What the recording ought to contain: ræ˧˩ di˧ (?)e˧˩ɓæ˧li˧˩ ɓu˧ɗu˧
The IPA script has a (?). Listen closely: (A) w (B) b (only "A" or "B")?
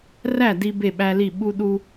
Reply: B